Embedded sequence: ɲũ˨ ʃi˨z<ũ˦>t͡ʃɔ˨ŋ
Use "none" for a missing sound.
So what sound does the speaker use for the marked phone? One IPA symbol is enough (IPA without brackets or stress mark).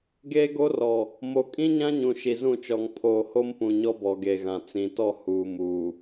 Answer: ũ˦˨